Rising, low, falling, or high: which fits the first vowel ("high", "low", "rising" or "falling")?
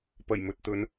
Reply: low